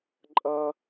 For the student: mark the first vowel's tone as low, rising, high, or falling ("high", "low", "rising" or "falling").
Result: high